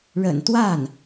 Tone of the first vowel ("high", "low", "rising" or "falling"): low